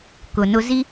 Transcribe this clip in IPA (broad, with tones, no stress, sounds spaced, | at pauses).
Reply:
k ʊ˨ n ʊ˦ z i˥